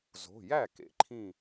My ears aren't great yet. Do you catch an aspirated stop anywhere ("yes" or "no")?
yes